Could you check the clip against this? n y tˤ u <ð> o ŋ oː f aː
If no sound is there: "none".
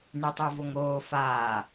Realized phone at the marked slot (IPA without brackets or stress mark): v